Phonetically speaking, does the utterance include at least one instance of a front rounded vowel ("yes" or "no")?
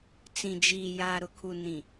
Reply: no